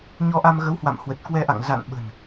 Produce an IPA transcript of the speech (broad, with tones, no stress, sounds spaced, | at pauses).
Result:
ɲ ɔ˧ ʔ a˧ m ɣ ə˨˦ w h w a̰˧˨ m h w ə˨˩ t̚ k w ɛ˧ ʔ a̰˧˨ ŋ z a̰˧˨ n ɓ ə̤˨˩ n